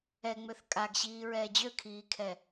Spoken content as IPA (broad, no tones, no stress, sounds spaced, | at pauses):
ɛ ŋ͡m ø θ kʼ a ɡ ɕ iː ɹ ɛː d͡ʑ ø kʰ iː kʰ ɛ